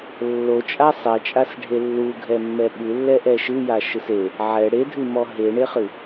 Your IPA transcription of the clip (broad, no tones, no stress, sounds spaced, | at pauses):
lː o t͡ʃʼ a sˤ ɛ t͡ʃʼ a s ɖʱ e lː u ɡʱ ɛ mː ɛ ɓ ɨ lː ɛ ʔ ɛ ʃ ɨ j a ʃ ɨ s e | ʕ ɛ ɽ e dʱ ɨ m ɔ ɦ e ɳ e χ ɨ